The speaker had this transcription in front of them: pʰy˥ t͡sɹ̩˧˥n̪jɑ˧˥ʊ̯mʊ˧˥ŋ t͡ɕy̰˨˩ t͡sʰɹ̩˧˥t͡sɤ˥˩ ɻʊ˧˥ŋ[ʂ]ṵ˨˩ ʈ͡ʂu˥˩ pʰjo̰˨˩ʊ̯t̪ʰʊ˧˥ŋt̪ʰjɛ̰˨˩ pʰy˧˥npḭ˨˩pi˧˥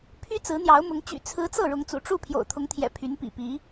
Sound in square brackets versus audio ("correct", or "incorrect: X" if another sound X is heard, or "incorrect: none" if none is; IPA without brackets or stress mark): incorrect: t͡s